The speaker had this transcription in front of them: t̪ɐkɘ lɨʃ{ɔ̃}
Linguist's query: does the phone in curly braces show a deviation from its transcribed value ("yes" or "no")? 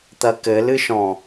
no